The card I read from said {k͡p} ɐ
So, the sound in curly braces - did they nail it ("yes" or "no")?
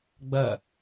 no